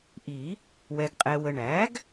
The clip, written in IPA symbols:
ʔi˨˩˦ | wɛ˨ɡqʼɛ˨wə˨ ɳæ˩˥ɡ

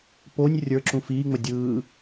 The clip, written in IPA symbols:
ponʲ rʲə˞ǁũ fiːŋ͡mə dʲɯː

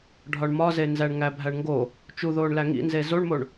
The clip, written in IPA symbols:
ɖʱɒɳmɒzenzæɳ ŋæbʱæɳŋɡo | t͡ʃuðoːɳlæ ŋḭnze zoɳmoɳ

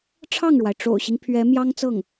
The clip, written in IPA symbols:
ʈ͡ʂʰɑ˥˩ŋɻwa˩ɪ̯ ʈ͡ʂo̰˨˩ʊ̯ɕi˦ŋ pʰɥɛ˧˥mjɑ˥ŋt͡sɤ˥˩ŋ

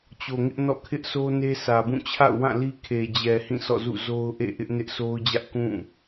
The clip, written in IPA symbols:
t͡ɕo˨ŋɪ˦ʔnɔ̰˦˨ kʰɪ˦ʔsʰo˦ ne˦sä˨bũ˦˨ t͡ɕʰa̰˦˨ʊ̯wã˦˨li˦ kʰe˨d͡ʑɛ˨ hĩ˦˨sɔ̰˦˨zṵ˦˨ zo˦ʊ̯ʔḛ˦˨ ʔɪ˦ʔ nɪ˦ʔsʰo˦ʊ̯d͡ʑä˦ʔ kũ˦˨

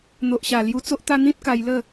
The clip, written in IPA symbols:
n̪o˨ʔɕa˨˩ lju˧t͡so˦ʔt̪a˦ n̪ĩ˦t̚ka˧jlə˥˧

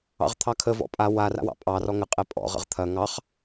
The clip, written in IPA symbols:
ɑ̰ʁt̪ʰɑkʰə vɔ̰pʼa wa ra̰wɑ̰pʼɑ rɔŋə qʼɛpʼɔ̰ ʁə̰ʁt̪ʰɐ ŋɑχ

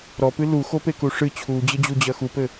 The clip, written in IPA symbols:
ɾɔpɨ luxopeku ʂɨ t͡ɕʰud͡ʑɘd͡ʑud͡ʑɐ xupɘ

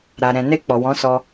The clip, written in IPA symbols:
ɾa˨ɾɛ̃˨ ne˧ k͡pɔ˨wɔ̃˨˦sɔ˧

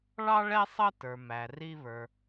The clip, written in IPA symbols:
ɭɑ˥ɭɛ˥ sˤʌ˥tə˞˩mæ˩ ri˧βə˞˩

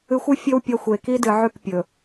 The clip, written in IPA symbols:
ɨ˨xʷɨ˦ fʲɵ˦w pʲɐ˦xʷe˨ ki˦dɨ˨ʕʉ˦˨k pʲɵ˨

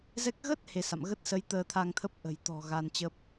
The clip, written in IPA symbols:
zɛ˦˥k̚ ɣə˦˥t̚ he˧sa̰˧˨m ɣə˦˥t̚sə˨˦j t̪əː˧t̪ʰa˧ŋt̪ʰə˦˥p̚ ʔə̤˨˩jt̪ɔ̤˨˩ ɣa˧nt͡ɕə˦˥p̚

